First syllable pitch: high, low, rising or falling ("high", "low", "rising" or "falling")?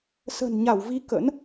low